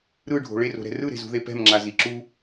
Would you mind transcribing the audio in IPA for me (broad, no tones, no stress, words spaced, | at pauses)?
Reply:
ɾɯɖʱo̤ ɭero̤ɾɛ̤ rɯɾe̤zṳðe pɛ̤mŋ͡ǁazi ǁu